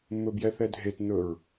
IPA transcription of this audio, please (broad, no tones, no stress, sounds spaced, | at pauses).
mː ɵ b j ɛ θ ɛ dʱ e t n̪ ɵ ɹ